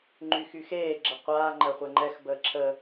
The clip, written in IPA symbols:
ŋ͡ǃyxyxeː ɡ͡ǁəqʷaː ŋ͡ǃɜχʷɛŋ͡ǃɛx bəːǁʰə

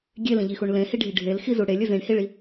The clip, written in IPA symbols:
ɡʲelĩʎixuɳ lẽhiɖʱi ɖʱelxizu ɽelʲɘ zĩɳhiɭi

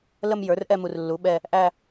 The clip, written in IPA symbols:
lə˥˧m jə˞˩˥rʔɛ˥˧mu˨r lːu˩˥ɓɛ˥˧ | ʔæ˥˧

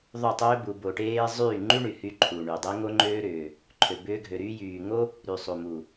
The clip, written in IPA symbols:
ðˤu˦˨tˤʏː˦bu˧ bo˧ʈeː˦ zˤyː˦˨ŋ͡ǃy˦ɳy˨hy˧ ǃʰu˨ɳy˨dˤe˦ ŋo˦ŋ͡ǃøː˦ɾʏː˨ | ǃʰø˧bʏː˦ɡʱø˧ ɾyː˧jyː˨ ŋo˦ | ɾy˨sˤu˨mu˨

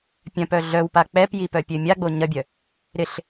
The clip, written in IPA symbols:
pʲœ̃pœ ɮœwpa k͡pɛpjipœpʲø mʲaɡ͡bo ɲɐbʲœ | ɾɪɬ

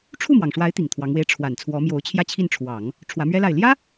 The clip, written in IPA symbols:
ʈ͡ʂʰu˥˩mwɑ˩ŋʂwa˧˥ɪ̯ t̪i˨˩ŋt̪ʰwɑ˧˥ŋwe˥ɪ̯ ʈ͡ʂʰwa˨˩n t͡sʰwɔ˧˥mjo˧˥ʊ̯ t͡ɕʰjä˥˧ t͡ɕʰi˥˩nʈ͡ʂʰwɑ˨˩˦ŋ | ʈ͡ʂʰwä˧˥mɥɛ˥la˥˩ɪ̯ ljä˥

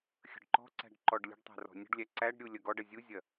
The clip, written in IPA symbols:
xʲə̤ɖǃɔ̤ǀæ̤ɖ ǃɔɖlʲə̤ɖtˤæ̤ rɔ̤nʲə̤ɖlʲæ ǀæɖɾʲu lʲɐɡɔɖɐ zʲuzʲɐ

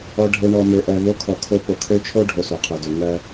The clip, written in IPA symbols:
ɔ˨ɖʱe˨ ɳɔ˨mø˨ʔɜ˨ vo˦kʰɔ˨kʰo˦ po˨kʰø˦t͡ʃʰo˦ ɖʱo˨so˨qʰø˨dø˨˦ ŋɜ˦

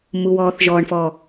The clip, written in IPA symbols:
muwɔːθʒɔɳfɔ

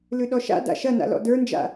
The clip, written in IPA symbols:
lʉɗɔʃa̰ da̰ʃɐna̰lɔ̰ də˞nd͡ʒa̰

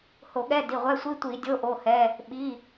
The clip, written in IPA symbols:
ho˧˩˧ɠɛ˧˥˧ di˩˧˩ʁʷɛ˧˥˧ sʷi˧˥˧ tʷi˧˩˧ dʲo˧˥˧ʔo˩˧˩hɛ˩˧˩ | ɓi˩˧˩

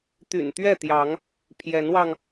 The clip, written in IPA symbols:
t̪y̰˨˩nt̪ɥɛ˥˨t̪jɑ˨˦ŋ | pʰjɛ˨˦nwɑ˧ŋ

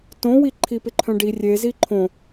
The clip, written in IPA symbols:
tõwiǃʰi pɪǃʰœ̃ɖi rʲezi ǃʰõ

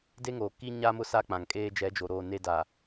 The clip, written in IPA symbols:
de˦ŋoː˨ ki˦ ɲa˦mʊ˦ sa˦k͡pã˨ŋkʼeː˦ d͡ʒɛ˨˦d͡ʒo˨ ɾoː˦˨ne˦ da˨

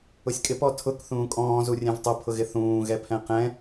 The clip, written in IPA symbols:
ʊsʲkʼɪp ɔtʰʊk θũːkʼɔ̃ːzurʲɛ̃v tˤʊpʰʊɣɪ θũː ɣɛpʰɛ̃qɛ̃

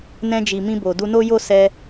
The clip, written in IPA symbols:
nɛ̃˧d͡ʒi˨ mĩ˧bo˨ du˧no˦jo˦ sɛ˧

